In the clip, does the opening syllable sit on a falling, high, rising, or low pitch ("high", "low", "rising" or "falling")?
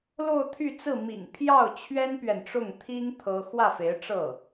falling